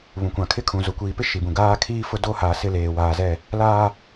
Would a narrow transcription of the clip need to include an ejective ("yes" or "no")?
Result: no